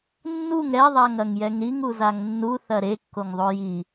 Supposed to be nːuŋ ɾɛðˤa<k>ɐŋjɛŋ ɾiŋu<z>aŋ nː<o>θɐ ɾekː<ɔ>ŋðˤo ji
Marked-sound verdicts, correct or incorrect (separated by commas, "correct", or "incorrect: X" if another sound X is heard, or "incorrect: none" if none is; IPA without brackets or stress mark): incorrect: ŋ, correct, incorrect: u, incorrect: o